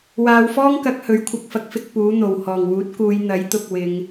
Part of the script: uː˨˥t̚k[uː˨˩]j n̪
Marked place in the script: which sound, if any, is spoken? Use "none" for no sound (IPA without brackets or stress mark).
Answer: uː˨˧